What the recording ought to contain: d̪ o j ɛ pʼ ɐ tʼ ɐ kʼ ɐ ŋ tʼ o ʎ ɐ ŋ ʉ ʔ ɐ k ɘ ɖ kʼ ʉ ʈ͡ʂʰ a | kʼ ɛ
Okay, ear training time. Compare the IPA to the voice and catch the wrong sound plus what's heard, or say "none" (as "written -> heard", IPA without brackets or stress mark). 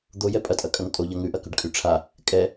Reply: ɘ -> ʉ